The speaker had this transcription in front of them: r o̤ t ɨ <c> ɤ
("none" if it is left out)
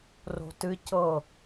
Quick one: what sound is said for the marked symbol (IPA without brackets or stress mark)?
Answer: c